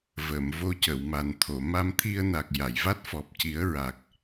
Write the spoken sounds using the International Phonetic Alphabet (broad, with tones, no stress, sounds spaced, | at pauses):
v ə˨˩˨ m v o˧ c ə˨˩˨ w m a˨˩ n t̪ʰ o˨˩˨ m a˧ m t̪ʰ i˧ ə̯ n a˨˩ k̚ j a˨˩˨ j v a˦˥ t̚ f ɔ˨˩ p̚ c i˨˩˦ ə̯ ɹ a˨˩ k̚